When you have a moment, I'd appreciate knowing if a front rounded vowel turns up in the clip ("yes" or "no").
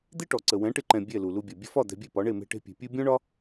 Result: no